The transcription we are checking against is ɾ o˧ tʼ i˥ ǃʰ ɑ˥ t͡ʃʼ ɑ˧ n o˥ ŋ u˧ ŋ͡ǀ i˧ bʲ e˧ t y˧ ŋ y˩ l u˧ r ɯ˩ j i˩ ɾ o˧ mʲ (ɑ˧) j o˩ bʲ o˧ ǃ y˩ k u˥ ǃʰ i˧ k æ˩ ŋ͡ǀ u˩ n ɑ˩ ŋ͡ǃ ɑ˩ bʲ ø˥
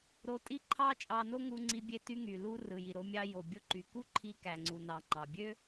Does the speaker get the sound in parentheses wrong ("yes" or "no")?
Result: no